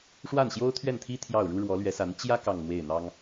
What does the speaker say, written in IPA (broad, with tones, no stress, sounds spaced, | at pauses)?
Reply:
ʂ w a˥˩ n ɕ j o˥ ʊ̯ t̪ʰ ɥ ɛ˥˩ n t̪ʰ i˥ t̪ʰ j ɑ˥˩ ʊ̯ ɻ u˥ ɻ w ɔ˧˥ l ɥ ɛ˧˥ s a˧˥ n t͡ɕ j ä˥ k ɑ˥˧ ŋ n̪ w e˥˩ ɪ̯ n̪ ɑ˥ ŋ